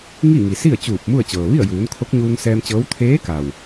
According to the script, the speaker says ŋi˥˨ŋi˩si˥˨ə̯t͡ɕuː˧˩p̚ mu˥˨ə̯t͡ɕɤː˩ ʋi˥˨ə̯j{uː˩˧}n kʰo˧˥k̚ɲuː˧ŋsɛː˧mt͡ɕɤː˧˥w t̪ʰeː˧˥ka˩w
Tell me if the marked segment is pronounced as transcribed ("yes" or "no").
yes